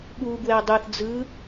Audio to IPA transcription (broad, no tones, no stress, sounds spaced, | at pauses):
ɠ u ɡ w ɛ dˤ ɯ θ d͡z ɯ